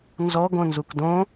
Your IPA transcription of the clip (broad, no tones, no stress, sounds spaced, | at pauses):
n z ɔ ɡ õ n z u k d õ